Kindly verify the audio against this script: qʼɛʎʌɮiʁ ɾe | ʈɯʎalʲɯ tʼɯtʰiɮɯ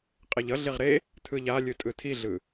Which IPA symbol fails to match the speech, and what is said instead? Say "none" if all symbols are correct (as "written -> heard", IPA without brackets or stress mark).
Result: ʈ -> tʰ